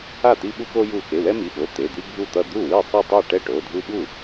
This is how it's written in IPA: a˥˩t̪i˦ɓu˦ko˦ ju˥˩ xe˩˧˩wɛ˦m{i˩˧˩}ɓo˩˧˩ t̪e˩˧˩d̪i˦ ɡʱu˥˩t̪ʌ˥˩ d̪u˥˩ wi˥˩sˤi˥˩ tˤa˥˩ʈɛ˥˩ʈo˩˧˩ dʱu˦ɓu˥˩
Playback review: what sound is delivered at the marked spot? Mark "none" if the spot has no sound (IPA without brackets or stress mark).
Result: i˩˧˩